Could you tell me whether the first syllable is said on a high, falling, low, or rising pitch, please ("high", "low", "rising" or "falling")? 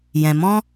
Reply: low